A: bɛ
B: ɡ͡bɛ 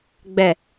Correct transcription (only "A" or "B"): B